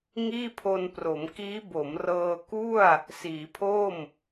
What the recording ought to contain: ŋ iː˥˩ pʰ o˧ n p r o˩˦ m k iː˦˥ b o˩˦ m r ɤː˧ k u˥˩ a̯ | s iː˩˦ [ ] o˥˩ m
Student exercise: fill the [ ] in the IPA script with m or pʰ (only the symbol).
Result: pʰ